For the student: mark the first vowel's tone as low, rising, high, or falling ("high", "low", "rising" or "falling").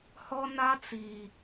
high